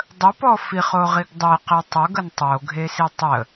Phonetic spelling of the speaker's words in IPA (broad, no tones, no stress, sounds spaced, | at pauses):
dˤ ə p ɔ f i χ o ʁ i ɡ dˤ e q e tˤ ʊ ɡ ə n tˤ o ɡʱ e s i tˤ ə